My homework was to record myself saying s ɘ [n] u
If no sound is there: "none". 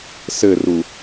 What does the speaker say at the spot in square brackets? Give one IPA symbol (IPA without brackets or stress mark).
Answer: r